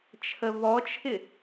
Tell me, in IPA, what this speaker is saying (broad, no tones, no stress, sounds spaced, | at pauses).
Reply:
t͡ʃʰ ə v ɔ t͡ʃʰ ɪ